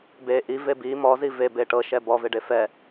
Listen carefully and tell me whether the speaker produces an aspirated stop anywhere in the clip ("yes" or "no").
no